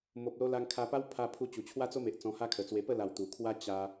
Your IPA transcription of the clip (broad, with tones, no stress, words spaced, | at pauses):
mo˨p̚lo˧la˧ŋ kʰa˧pa˦w pʰa˧pʰu˧ t͡ɕu˨˩t͡ɕʰwa˦t͡so˦me˨ʔ t͡sɔ̃˧ha˦kʰə˨˩t͡swe˧ pə˥˧la˨˩w t̪u˨˩kʰwa˦ t͡ɕa˧